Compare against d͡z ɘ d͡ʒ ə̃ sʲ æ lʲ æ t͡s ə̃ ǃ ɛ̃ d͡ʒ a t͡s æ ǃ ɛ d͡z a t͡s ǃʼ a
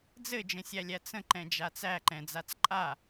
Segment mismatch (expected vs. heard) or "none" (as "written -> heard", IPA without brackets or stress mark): ɛ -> ɛ̃